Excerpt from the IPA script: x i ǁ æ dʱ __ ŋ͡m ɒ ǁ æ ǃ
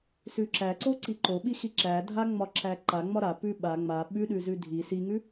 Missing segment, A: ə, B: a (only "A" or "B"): B